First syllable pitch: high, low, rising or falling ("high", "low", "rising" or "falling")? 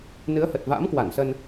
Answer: rising